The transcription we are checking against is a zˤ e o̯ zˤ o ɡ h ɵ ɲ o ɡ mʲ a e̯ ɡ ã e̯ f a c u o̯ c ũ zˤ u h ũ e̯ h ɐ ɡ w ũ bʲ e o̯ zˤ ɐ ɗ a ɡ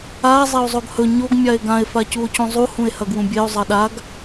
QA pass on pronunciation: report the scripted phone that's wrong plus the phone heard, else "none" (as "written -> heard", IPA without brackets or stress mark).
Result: none